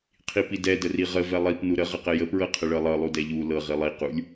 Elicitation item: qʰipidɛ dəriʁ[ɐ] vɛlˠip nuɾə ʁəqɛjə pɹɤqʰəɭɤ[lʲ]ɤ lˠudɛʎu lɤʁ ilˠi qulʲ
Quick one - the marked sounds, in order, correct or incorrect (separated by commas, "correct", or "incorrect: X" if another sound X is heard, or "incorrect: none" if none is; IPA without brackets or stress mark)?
incorrect: ə, incorrect: lˠ